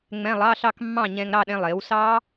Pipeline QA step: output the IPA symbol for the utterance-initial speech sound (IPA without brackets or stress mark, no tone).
ŋ͡m